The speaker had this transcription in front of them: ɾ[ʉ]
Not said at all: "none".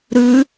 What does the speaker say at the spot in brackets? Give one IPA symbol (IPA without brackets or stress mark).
ʉ